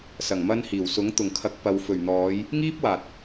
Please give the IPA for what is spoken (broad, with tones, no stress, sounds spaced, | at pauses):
s ɐ˨˩ ŋ m ɐ˧ n h iː˨˩ w s ʊ˨˥ ŋ t̪ ʊ˨˩ ŋ kʰ ɐ˨˥ k̚ p ɐ˨˧ w f ɵ˨˩ ɥ n̪ ɔː˨˧ j | ŋ iː˥ p̚ w aː˨ t̚